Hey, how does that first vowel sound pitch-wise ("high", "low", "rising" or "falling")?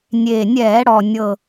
low